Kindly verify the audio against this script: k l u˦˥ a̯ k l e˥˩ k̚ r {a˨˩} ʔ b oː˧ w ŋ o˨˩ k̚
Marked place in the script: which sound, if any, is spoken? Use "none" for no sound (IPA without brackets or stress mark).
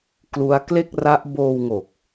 a˦˥